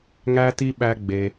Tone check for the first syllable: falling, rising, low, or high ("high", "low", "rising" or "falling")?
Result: high